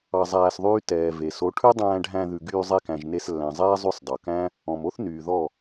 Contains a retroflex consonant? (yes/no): yes